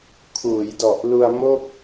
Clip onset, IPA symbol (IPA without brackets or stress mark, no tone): kʰ